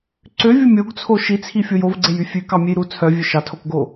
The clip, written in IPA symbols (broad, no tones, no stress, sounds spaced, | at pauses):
ǀ ø vʲ u mʲ o ɡ t͡sʰ o ʃ i t͡sʰ i fʲ o j o v ɡ͡ǀ e j y fʲ ʉ k ɑ mʲ e j ɾ u t͡sʰ œ vʲ ø ʃ ɑ tʰ o k ɡ o